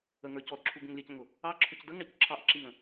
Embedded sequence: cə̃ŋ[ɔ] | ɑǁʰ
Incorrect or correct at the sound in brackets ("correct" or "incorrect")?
incorrect